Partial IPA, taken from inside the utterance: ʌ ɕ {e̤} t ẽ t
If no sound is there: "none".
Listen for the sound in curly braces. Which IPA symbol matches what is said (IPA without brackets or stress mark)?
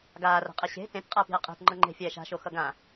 e̤